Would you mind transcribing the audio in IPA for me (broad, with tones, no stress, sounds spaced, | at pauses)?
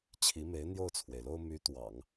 t͡ɕʰ i˧˥ m e˧˥ ɪ̯ n̪ j o˥˩ ʊ̯ t͡sʰ w e˩ ɪ̯ l o˥ ʊ̯ m y˧˥ t̪ w ɑ̰˨˩˦ ŋ